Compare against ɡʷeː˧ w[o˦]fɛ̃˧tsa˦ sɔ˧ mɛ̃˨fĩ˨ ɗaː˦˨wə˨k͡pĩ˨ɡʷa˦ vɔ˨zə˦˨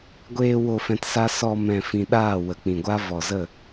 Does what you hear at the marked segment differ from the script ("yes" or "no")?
yes